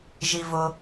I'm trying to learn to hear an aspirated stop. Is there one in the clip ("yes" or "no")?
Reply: no